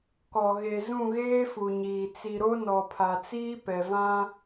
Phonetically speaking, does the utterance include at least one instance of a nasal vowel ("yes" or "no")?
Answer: yes